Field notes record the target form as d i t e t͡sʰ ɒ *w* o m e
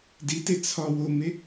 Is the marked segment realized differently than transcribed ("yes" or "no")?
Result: no